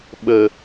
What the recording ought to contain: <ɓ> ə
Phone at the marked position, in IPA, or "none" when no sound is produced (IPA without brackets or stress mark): ɓ